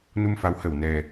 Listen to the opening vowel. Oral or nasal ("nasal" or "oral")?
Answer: oral